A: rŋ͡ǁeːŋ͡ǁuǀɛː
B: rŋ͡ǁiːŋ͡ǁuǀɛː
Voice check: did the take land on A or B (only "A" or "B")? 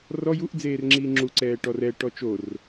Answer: B